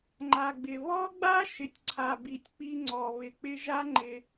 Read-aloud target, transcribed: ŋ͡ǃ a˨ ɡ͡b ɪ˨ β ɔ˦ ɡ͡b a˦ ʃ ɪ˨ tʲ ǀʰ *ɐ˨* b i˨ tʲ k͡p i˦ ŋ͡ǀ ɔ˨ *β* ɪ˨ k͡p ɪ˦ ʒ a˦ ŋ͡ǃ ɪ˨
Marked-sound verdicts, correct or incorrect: incorrect, correct

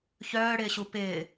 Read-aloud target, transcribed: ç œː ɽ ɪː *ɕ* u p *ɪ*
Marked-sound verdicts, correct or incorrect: correct, incorrect

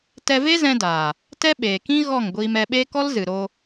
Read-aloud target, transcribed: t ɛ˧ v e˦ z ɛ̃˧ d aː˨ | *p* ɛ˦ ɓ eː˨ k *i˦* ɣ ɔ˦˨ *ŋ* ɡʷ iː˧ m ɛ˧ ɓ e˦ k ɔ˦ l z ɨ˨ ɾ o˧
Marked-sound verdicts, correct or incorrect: incorrect, incorrect, correct

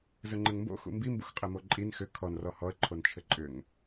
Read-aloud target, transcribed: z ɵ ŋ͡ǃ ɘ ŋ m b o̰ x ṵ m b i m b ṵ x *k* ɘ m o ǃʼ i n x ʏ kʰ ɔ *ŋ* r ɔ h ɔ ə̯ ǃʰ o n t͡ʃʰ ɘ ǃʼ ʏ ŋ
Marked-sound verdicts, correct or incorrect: incorrect, incorrect

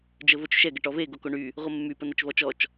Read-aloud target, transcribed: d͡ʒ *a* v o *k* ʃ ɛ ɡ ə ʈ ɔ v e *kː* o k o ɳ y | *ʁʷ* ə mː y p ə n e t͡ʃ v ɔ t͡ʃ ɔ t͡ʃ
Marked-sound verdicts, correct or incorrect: incorrect, incorrect, incorrect, correct

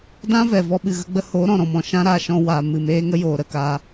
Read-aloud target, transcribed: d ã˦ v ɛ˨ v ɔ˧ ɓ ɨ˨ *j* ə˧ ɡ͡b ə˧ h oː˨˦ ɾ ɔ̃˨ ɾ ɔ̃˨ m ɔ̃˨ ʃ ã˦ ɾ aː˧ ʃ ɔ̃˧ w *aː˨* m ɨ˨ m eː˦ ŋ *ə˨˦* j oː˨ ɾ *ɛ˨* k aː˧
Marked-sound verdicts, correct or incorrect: incorrect, correct, incorrect, incorrect

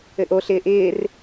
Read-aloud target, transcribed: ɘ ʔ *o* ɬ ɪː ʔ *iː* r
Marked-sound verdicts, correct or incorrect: correct, incorrect

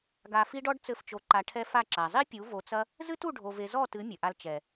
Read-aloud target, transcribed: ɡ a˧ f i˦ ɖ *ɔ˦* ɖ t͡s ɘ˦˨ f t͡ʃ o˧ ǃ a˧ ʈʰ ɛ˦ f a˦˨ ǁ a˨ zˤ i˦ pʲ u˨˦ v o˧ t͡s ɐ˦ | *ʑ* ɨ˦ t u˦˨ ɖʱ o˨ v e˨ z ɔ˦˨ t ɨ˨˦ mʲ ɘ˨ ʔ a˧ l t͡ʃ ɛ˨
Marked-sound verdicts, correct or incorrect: correct, incorrect

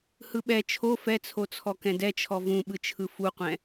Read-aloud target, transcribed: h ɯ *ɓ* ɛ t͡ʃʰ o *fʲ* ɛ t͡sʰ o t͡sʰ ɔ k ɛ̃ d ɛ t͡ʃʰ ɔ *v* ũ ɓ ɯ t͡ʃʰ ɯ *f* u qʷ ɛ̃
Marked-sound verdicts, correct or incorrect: correct, incorrect, correct, correct

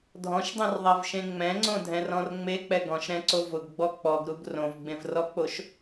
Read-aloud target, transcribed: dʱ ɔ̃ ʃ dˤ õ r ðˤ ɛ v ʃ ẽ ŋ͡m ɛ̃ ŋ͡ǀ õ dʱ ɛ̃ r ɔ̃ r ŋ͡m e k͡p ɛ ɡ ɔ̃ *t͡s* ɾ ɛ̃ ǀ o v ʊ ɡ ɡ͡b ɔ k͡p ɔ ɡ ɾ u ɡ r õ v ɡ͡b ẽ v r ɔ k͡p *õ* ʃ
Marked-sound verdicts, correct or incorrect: incorrect, incorrect

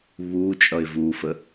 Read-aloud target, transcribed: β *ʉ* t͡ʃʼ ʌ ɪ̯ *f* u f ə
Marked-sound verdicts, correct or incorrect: incorrect, incorrect

